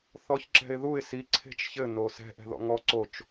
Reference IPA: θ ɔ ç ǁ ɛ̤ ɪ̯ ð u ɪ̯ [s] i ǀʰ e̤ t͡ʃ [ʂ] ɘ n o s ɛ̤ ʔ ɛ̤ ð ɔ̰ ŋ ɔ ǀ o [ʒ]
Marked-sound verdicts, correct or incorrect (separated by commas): correct, incorrect, incorrect